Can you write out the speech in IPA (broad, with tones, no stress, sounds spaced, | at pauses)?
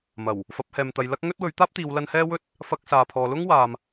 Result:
m ɐ˨˩ w | f ɐ˨˥ p̚ h ɛː˨ m t̪ ɐ˨˧ j l ɐ˥ k̚ ŋ ɵ˥ t̚ w ɵ˨˥ ɥ t̪ aː˥ p̚ t̪ iː˨˧ w l ɐ˧ n h ɛː˥ w ɵ˥ t̚ | f ɐ˧ k̚ s aː˨ pʰ ɔː˨ l ʊ˥ ŋ w aː˨ m